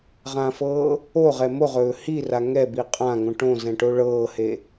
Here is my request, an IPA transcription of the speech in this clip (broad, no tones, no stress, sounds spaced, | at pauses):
ʁ ã f ɤː | o ʁ ɛ m o ʁ ɵː h i r a ŋ ɛ b i qʼ ã ŋ õ ʈ õ z ɛ̃ ʈ o ɭ ɤː h e